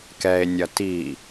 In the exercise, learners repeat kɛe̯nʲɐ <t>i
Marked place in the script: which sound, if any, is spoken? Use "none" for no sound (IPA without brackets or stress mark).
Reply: t